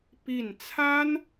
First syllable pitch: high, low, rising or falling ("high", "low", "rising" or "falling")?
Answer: falling